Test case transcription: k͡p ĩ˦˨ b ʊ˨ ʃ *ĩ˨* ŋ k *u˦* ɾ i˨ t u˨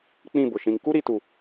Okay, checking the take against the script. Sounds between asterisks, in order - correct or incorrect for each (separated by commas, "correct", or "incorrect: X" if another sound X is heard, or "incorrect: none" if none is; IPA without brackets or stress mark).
correct, correct